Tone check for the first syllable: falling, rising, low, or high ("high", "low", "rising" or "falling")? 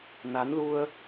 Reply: rising